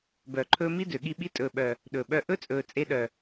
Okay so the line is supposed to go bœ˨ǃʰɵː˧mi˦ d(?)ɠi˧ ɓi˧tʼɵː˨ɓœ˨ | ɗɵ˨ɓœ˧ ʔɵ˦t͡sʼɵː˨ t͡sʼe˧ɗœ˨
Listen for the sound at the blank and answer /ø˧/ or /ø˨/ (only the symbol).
ø˨